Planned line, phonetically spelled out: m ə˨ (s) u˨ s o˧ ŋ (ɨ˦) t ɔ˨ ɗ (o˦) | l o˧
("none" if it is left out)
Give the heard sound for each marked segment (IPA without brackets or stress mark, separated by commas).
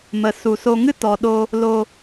s, ɨ˦, o˧